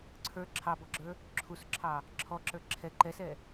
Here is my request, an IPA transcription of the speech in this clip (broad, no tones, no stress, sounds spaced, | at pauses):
ǀʰ ə˞ ǁʰ ɑ b ɔ ɡ͡ǁ ə˞ | ǁʰ u s ǁʰ ɑ | ǁʰ ɔ ǁ ə˞ ǁʰ ɛ ǃ ɛ s ɛ